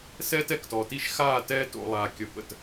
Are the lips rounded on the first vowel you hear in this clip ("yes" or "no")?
no